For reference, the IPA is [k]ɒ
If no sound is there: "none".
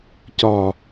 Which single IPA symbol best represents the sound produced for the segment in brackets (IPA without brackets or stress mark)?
c